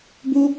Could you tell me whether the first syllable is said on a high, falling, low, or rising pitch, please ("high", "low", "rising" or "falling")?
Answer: high